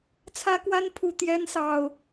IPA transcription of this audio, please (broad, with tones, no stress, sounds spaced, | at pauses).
t͡sʰ ä˦ k w a˦ n pʰ u˨˩ t̪ j ɛ˦ n s ɑ˨˩ ʊ̯